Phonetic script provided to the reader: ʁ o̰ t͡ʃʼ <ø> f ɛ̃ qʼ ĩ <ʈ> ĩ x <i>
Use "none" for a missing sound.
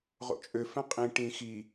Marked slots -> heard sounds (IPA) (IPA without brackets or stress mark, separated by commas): ø, ʈ, i